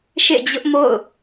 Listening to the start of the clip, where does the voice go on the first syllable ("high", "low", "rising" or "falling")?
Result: falling